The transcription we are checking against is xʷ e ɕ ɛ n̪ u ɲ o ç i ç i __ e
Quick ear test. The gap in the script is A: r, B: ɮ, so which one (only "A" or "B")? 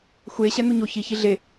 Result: B